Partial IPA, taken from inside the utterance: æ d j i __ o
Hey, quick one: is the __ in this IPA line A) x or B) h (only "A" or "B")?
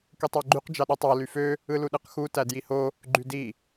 B